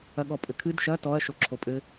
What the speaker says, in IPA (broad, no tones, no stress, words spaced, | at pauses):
ɐɠɔpʼɘkʰɨd ʃɐ tɔɐ̯ ʃoǁʰopʼɘ